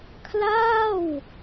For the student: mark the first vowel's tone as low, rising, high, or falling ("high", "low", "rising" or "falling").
falling